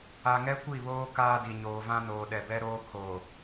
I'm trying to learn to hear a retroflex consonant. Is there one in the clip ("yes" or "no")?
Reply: no